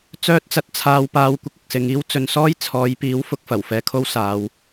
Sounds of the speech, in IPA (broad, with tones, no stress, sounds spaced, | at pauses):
t͡s œː˥ t̚ t͡s ɐ˧ t̚ t͡sʰ aː˧ w p aː˧ w kʷ ɪ˥ k̚ ɪ˨ k̚ s ɪ˨˧ ŋ iː˥ w t͡s ɵ˧ n s ɔː˥ j t͡sʰ ɔː˨˧ j p iː˨˥ w f ʊ˧ k̚ f ɐ˨˩ w f ɛː˧ kʰ o˥ w s aː˨˧ w